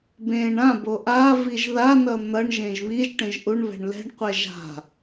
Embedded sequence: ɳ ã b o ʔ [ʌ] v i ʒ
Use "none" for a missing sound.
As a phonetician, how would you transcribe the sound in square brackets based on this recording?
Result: a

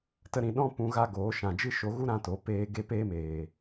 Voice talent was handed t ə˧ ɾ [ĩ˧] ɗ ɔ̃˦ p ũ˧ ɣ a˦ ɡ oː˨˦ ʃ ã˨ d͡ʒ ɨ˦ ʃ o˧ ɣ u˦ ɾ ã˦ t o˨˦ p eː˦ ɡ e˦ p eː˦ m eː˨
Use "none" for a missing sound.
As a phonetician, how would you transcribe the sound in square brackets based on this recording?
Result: ĩ˨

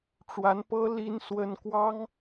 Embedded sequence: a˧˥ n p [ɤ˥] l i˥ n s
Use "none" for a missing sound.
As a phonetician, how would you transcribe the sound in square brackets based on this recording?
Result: ɤ˥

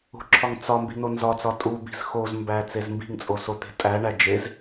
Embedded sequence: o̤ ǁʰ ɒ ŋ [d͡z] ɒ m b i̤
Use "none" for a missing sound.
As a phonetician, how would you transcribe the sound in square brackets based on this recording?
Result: t͡s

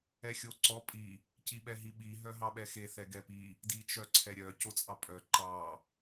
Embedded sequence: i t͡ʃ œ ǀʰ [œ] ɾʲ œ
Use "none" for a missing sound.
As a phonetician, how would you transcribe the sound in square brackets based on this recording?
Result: ɛ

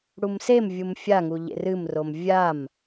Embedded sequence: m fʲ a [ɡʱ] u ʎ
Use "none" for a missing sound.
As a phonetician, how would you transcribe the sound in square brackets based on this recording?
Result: ŋ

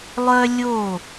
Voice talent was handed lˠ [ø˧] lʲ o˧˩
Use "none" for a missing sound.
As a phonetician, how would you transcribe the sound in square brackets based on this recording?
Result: œ˧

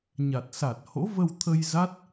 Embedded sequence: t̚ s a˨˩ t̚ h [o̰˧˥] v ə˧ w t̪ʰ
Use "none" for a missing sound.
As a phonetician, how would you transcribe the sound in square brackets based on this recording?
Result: o̰˧˥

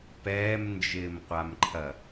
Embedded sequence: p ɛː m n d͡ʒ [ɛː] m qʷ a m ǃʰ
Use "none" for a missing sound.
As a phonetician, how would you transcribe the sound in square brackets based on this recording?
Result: ɪː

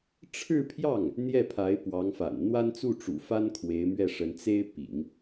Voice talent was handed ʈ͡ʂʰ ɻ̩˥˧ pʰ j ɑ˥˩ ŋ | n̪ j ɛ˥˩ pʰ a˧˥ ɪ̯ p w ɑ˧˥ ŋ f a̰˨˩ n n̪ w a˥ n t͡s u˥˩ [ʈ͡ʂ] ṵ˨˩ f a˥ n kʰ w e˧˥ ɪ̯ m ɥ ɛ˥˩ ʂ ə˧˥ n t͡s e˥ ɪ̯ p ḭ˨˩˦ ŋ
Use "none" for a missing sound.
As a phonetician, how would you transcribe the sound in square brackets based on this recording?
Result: ʈ͡ʂ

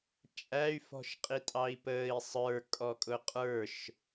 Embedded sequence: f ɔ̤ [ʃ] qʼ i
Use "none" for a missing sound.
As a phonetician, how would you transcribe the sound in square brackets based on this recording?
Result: ʃ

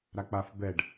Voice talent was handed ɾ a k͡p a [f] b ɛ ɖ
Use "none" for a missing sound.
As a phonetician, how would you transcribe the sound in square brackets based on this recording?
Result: f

